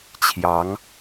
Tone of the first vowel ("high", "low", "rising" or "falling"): rising